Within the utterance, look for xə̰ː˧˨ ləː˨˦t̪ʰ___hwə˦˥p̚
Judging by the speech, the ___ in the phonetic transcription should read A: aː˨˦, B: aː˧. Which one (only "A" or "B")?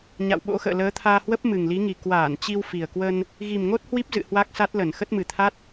B